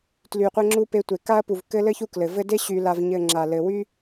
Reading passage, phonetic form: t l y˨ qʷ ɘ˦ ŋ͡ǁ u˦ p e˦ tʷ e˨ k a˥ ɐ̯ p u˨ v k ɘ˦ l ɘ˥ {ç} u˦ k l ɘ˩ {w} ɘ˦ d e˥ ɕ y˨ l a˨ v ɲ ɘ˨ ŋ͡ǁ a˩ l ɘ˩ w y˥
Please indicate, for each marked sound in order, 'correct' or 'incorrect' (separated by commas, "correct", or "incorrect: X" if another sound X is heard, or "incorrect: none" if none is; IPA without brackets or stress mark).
correct, incorrect: v